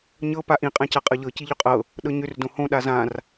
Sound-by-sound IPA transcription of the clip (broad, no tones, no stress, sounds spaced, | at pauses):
ɲ ɤ p a ʔ ĩ qʼ ã c a qʼ ɤ ʎ ɤ c i ʎ ʏ qʼ ɤ | ɗ ɤ ɲ ʏ r d õ h õ ɗ a z ã r